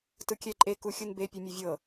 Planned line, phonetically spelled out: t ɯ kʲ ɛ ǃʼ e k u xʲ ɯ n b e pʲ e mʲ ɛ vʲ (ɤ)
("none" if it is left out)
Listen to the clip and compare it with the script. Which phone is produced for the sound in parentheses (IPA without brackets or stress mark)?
ɤ